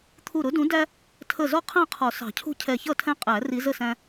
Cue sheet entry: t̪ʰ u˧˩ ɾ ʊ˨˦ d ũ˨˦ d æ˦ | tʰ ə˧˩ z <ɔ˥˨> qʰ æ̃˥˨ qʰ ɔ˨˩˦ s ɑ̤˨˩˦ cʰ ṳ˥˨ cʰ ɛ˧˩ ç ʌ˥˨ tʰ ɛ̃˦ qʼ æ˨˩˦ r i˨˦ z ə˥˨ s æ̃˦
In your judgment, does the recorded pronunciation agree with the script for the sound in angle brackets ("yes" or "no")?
yes